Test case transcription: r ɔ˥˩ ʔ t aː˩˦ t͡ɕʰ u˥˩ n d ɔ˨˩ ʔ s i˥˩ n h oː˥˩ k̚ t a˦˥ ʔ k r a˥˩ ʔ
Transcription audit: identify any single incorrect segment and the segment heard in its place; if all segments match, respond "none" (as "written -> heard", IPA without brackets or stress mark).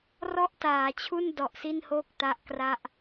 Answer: none